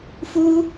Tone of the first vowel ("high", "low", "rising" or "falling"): high